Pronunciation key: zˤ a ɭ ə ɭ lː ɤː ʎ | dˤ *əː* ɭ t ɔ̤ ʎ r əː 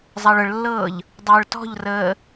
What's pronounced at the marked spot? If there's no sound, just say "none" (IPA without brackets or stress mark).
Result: əː